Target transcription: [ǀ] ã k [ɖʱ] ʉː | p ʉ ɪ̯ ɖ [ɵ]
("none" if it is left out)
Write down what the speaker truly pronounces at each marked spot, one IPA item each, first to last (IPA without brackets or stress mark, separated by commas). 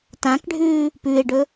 t, ɖʱ, ɵ